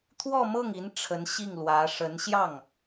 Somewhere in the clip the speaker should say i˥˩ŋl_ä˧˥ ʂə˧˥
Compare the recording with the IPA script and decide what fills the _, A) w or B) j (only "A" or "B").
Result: A